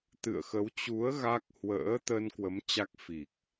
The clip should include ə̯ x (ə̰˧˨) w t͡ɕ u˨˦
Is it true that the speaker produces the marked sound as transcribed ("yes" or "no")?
no